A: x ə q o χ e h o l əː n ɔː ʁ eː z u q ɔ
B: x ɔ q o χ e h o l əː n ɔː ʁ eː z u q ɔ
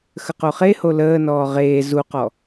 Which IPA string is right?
A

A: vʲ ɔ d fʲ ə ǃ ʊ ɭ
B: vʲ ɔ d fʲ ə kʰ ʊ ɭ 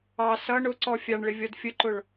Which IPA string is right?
A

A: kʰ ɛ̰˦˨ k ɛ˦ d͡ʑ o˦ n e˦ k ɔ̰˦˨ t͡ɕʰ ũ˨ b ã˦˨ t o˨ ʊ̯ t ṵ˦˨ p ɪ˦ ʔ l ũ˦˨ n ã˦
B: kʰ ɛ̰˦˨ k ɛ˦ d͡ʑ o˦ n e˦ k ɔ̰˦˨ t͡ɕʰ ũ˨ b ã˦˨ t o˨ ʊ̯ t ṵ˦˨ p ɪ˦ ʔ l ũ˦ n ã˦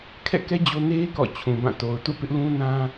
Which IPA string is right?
B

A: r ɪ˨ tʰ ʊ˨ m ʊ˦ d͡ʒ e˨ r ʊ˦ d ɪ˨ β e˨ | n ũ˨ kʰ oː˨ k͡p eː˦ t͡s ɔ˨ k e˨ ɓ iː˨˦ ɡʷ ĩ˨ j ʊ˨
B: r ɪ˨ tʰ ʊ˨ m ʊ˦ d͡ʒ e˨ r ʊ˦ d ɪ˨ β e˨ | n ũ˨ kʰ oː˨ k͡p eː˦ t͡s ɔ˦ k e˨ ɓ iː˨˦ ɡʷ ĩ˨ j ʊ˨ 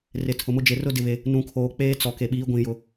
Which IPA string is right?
A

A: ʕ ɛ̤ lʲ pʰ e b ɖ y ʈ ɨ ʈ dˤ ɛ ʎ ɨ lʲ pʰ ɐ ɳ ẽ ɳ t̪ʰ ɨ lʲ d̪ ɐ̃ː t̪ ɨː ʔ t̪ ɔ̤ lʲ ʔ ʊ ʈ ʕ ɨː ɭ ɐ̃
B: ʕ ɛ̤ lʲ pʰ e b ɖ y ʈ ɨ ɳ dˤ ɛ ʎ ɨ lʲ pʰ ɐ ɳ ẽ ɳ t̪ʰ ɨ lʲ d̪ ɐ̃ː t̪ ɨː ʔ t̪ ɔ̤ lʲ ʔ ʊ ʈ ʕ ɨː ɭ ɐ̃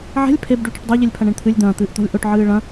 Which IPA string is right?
A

